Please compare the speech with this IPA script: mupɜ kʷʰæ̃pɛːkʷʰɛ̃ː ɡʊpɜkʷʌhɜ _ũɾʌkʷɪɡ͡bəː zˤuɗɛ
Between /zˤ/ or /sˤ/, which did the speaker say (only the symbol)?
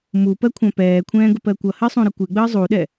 sˤ